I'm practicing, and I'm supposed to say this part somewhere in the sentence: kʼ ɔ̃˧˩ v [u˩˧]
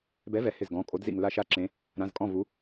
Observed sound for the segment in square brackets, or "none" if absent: u˩˧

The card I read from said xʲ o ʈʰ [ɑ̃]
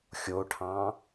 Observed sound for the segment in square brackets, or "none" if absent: ɑ̃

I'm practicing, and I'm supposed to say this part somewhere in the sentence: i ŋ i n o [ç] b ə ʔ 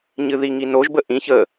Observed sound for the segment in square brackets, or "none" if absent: ʒ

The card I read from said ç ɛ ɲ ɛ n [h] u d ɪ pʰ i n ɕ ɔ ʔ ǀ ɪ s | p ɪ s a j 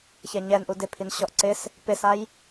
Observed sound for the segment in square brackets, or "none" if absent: ʔ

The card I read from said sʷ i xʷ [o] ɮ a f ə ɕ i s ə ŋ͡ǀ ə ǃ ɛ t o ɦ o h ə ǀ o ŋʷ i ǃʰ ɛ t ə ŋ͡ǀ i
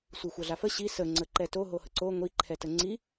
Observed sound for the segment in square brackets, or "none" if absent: ɤ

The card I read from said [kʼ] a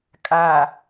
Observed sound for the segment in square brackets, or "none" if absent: kʼ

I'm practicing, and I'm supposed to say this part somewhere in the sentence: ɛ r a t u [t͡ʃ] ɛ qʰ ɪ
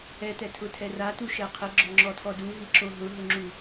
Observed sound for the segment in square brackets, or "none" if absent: ʃ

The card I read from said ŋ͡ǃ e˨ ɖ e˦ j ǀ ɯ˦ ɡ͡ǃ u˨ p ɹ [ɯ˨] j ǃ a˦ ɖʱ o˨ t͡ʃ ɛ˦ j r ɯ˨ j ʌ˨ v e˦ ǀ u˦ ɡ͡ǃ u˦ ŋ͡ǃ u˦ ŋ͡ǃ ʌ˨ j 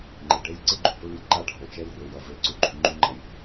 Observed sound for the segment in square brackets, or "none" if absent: ɯ˦˨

